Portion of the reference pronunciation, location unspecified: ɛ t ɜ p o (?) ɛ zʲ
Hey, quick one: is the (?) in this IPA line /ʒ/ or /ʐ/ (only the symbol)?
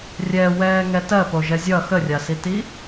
ʒ